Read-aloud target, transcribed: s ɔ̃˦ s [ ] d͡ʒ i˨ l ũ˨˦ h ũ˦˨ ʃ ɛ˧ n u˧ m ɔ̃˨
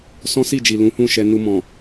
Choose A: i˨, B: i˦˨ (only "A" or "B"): B